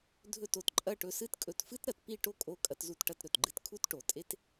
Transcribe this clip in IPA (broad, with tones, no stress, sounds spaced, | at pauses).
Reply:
dʱ ɵ˦˨ t o˨ t ǃʼ ɐ˦˨ ʈ ɵ˧ s ɨ˦ t kʼ ɵ˧ t f ɨ˦ t ɾ ɐ˨ t p i˦˨ ʈ o˦ kʼ o˧ kʼ ɐ˧ t z u˧ t ʈ ɐ˧ t ɾ ɵ˨ t ɡ͡ǃ ɨ˧ t kʰ u˦ t ʈ o˨ tʼ e˦ t